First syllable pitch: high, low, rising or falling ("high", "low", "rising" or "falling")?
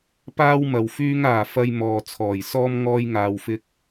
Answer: high